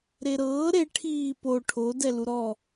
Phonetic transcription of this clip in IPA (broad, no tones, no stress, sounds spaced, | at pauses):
ɾ e ɾ ɤː ɾ e ʈʰ iː p o ʈʰ o d ɛ l u ɾ ɔ